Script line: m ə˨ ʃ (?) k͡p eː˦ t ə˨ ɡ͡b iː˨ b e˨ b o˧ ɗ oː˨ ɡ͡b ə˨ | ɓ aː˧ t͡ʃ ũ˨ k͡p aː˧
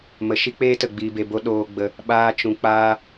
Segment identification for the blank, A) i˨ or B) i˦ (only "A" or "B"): B